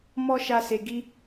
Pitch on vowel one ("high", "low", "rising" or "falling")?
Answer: high